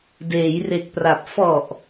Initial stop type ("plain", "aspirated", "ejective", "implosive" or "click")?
plain